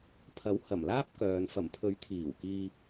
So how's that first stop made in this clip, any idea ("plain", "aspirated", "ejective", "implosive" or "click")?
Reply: aspirated